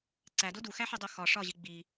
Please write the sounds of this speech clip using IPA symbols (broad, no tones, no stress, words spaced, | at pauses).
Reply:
ǀædo duxæħedˤo xɒ ʂɒʑi ɡ͡bi